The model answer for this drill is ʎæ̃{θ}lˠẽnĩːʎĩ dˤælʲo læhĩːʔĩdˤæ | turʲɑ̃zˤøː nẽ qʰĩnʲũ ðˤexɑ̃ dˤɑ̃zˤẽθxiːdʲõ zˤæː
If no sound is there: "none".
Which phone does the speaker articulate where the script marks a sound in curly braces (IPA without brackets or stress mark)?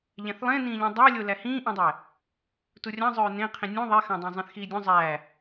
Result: θ